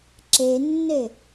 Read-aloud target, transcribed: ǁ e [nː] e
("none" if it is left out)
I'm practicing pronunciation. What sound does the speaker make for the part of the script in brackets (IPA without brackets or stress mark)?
nː